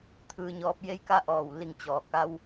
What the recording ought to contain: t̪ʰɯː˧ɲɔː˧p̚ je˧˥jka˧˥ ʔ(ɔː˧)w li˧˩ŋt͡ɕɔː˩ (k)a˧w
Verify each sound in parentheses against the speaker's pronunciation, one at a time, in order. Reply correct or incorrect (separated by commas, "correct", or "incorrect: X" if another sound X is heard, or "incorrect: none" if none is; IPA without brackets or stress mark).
incorrect: ɔː˧˩, correct